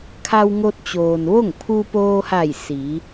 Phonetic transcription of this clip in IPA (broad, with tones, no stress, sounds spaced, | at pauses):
kʰ a˧ w ŋ o˧ t̚ t͡ɕ oː˩ n ʋ o˥˨ ŋ pʰ u˧ p oː˧ h a˧˩ j s i˩˧